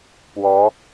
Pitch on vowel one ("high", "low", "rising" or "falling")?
rising